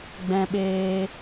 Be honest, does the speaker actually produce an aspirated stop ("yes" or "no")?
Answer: no